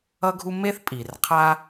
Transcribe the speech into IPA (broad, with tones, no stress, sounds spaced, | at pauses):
ʌ˥ ɡʱ u˥ m e˥ θ pʼ i˨ r qʰ a˥